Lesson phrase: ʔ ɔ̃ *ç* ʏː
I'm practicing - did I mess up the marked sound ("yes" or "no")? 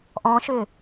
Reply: yes